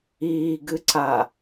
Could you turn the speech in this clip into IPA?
iː ɡ ɨ ǀ a

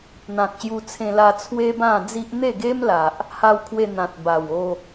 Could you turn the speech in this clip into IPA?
n̪ ã˨ k̚ ɕ j u˧ t͡sʰ ẽ˧ l a˧ t͡sʰ w e˦ b ã˥˧ d͡z i˦ ʔ n̪ e˥˧ ɡ e˦ m l a˨ ʔ | h a˧ w kʰ w e˧ n̪ ã˨ t̚ b a˨˩ w o˥˧

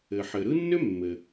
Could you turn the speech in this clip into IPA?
ɘ˩ ħ ɘ˩ ɾ ɯ˥ nː ʏ˥ mː ɘ˩

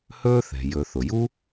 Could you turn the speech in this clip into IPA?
h ɵː˥ θ ɛ̤˩ j ɵ˩ θ ʊ˩ j u˥

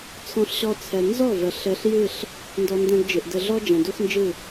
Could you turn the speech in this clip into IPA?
t͡sʰ ɔ̃˦ ɬ ɕ ɔ˦ t͡sʰ ɛ˧ n z ɔ˦˨ v ə˨ ɬ ɘ˧ ɬ j ɨ˦˨ ɬ | n d ɔ˧ n d ɛ̃˧ ɡ d͡ʒ ɨ˨ ʔ d ɘ˧ ɮ ɔ˦ d͡ʒ ɛ̃˨ d u˦ x n d͡ʒ ɨ˦˨

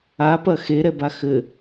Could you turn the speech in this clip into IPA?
a p ɐ x e ɾ ɛ b a x ɘ

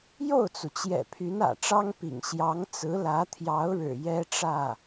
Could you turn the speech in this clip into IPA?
j o˥˩ ʊ̯ t͡s u˩ t͡ɕ j ɛ̰˨˩ pʰ y˧˥ n ä̰˨˩ ʈ͡ʂ ɑ˥ ŋ p ḭ˨˩ ŋ ɕ j ɑ˧˥ ŋ t͡s ɹ̩˧˥ l ä˧˥ t̪ʰ j ɑ˧˥ ʊ̯ ɻ ɻ̩˨˩ j ɛ˥ ʈ͡ʂ ä˥˩

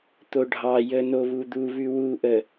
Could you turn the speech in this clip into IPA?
t̪ o ɖʱ ɑ j ə n o β u d̪ u β ʉ w u ʔ ə

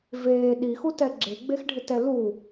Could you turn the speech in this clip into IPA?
v eː ɗ i x u t ɛ ɡ͡ǁ e ɡ͡b e x ɖʱ ɪ t ɛ l u

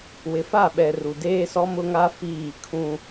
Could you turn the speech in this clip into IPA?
w ɪ˨ f a˦˨ ɓ ɛ˨ r u˨ d eː˦ s ɔ˦ m ʊ˦ ŋ a˦ f iː˦˨ kʰ ũ˦

